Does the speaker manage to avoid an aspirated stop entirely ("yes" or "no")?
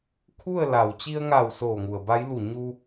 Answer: no